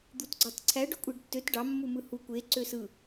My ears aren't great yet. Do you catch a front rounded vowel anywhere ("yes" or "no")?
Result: yes